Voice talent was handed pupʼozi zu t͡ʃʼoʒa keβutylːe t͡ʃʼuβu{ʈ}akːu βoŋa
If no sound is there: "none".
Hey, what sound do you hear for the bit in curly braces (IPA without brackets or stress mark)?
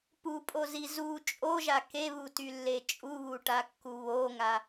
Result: ʈ